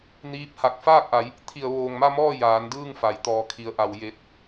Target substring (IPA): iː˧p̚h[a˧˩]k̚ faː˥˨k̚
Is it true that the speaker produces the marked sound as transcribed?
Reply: yes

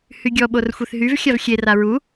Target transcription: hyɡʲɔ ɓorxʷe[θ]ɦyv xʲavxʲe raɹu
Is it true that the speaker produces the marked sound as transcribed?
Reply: yes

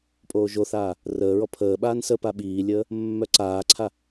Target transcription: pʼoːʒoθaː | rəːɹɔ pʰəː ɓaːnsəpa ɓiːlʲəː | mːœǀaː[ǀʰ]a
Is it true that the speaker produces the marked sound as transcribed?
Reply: yes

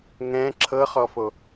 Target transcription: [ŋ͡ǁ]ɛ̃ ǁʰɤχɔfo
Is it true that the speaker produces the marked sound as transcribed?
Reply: no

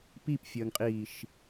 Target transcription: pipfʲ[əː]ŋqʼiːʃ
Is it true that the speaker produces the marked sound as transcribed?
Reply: yes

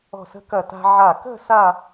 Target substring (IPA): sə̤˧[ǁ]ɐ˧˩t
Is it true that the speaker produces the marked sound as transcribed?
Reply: no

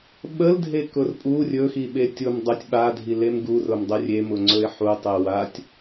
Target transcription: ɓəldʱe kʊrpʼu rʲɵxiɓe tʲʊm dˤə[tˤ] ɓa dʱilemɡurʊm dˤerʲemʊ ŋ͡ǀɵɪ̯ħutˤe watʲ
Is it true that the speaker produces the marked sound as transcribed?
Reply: no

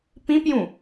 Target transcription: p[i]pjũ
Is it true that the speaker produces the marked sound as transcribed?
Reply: no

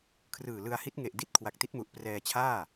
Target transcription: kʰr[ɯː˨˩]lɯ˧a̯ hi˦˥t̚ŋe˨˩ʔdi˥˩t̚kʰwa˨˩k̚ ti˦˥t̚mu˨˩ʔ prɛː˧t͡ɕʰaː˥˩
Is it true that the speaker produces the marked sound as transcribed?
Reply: yes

